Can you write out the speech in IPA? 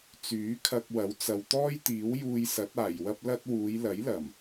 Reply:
t͡s yː˨˥ kʰ ɐ˧ k̚ w ɐ˨˥ w t͡s ɐ˨ w t̪ ɔː˥ j t̪ iː˨˥ w j uː˧ j s ɐ˨˥ t̚ aː˨˩ j w ɐ˥ p̚ l ɐ˥ t̚ w uː˨˧ j l ɐ˨˥ j l ɐ˨˩ m

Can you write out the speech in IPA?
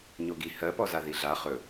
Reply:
ɲ o ɡ i h ɜ p ɔ z a ð i ɮ a χ ɵ

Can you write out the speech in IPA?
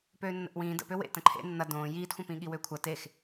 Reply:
p øː nː ə̰ ʔ w ĩː d ə̰ p ø w ḛ t ə̃ ǃʰ ḛ nː ɐ d õː j iː t xʷ ɐ̃ p ĩ ɠ i w ø kʷʰ ɐ t e x

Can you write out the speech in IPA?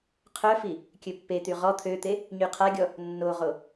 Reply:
qʰ œ f i | kʲ ø pː e t̪ y ʁ ɔ t̪ʰ ø t̪ e | ɲ y qʰ a ɡʲ ɔ | nː o ʁ o

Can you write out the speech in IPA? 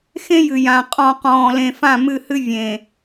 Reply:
x ẽ˦ j ɨ˨ j ã˨ qʼ ɔ̃˨ q ɔ̃ː˨ l ẽ˨ f ã˦˨ m ɨ˦˨ h ɨ˦ vʲ ẽ˨

